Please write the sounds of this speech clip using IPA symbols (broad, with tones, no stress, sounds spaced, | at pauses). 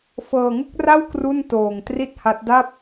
f ɤː˧ ŋ u˥˩ k̚ r a˥˩ w k r u˥˩ n t oː˧ ŋ t r i˥˩ t̚ h a˦˥ t̚ d a˥˩ p̚